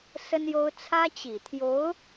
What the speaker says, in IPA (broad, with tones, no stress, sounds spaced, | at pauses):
s ə˥ n j o˥ ʊ̯ t͡sʰ ä˥ t͡ɕ i˨˩ t̪ʰ j o˧˥ ʊ̯